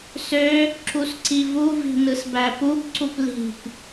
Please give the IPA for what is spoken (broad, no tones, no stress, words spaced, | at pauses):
sø | ǁusǀivuvi̤ nɯsbæpubǀup li̤p